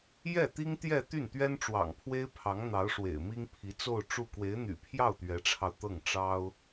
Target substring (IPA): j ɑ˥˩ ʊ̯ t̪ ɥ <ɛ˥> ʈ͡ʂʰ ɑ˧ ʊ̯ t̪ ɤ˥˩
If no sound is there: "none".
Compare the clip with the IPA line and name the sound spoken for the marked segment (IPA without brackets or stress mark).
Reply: ɛ˧˥